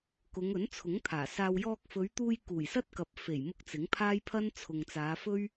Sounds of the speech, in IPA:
kʊ˨˧ŋɵ˨˥nt͡sʰʊ˨˥ŋ t̪ʰaː˨˩saː˧w jɔː˧k̚fɵ˨˧ɥt̪uː˧j kuː˨˩jsɐ˥t̚kɐ˨p̚ fe˨˩jmʊ˧k̚ t͡sɪ˨˥ŋpʰaː˥jpʰɐ˥n t͡sʰʊ˨ŋt͡saː˨˧ fɵ˥ɥ

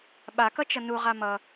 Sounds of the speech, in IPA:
ɓakʌt͡ʃʌ nuʁa mʌ

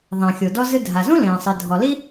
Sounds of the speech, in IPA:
ðˤɛ̃˩xʲo˩dɔ˥zɨ˥ dʱa˩zũ˥lẽː˩sˤɨ˩ dʱɔ˩li˥

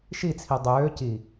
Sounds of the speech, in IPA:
ʃit͡sʰi dˤøː ci

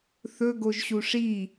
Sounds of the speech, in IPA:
θɵ ɡoʒɕuʂi

